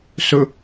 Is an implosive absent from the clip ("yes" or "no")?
yes